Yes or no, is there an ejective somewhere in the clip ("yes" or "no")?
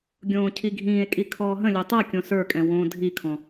yes